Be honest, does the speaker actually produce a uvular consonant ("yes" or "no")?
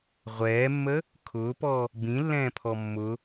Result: yes